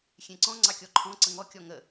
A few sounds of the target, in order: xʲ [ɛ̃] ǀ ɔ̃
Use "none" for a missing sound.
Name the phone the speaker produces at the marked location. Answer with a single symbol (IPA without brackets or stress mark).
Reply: ẽ